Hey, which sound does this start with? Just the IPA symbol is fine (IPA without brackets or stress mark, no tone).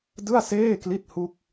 d